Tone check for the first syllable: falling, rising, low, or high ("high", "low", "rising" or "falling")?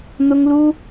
high